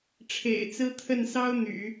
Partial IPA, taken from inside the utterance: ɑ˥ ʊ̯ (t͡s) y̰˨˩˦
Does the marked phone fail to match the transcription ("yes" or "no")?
yes